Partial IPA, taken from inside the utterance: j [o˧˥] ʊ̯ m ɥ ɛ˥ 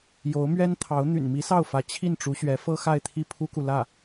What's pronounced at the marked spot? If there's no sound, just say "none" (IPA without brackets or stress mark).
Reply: o˧˥